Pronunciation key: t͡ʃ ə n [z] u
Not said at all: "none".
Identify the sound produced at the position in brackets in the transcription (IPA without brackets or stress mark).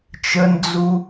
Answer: d͡z